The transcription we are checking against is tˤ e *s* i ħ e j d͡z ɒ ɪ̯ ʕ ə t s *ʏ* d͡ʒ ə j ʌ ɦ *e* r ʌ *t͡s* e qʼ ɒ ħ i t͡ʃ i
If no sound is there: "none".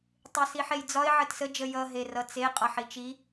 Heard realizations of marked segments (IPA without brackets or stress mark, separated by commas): s, ə, e, t͡s